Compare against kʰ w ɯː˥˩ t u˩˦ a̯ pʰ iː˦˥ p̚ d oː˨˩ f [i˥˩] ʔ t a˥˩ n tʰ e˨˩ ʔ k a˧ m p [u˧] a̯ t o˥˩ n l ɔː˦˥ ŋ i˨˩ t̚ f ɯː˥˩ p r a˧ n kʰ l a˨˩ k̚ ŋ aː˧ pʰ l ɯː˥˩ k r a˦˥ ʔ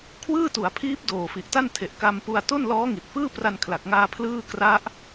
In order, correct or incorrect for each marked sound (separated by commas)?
incorrect, correct